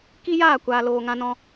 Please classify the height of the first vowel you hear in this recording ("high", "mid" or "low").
high